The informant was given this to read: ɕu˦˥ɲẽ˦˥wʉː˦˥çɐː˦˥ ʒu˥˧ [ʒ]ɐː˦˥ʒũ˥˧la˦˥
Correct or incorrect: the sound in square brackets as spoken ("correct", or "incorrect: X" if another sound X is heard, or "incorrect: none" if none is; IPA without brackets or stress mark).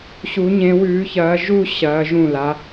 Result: incorrect: ɕ